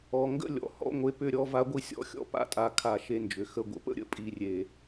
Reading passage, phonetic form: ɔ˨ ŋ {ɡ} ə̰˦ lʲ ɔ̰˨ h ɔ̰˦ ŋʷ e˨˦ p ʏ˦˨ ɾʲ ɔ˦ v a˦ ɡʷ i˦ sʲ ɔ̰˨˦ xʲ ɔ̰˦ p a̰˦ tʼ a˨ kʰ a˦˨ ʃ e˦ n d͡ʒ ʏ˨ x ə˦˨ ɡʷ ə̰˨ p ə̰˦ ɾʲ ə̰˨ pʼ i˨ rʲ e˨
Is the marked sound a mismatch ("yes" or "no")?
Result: no